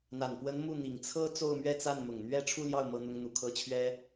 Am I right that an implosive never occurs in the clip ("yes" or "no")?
yes